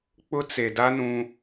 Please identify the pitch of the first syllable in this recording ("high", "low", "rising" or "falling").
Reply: high